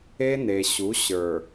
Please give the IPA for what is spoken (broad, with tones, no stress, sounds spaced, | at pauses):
e˦ n e˨ ɕ u˨˦ ɕ ə˞˨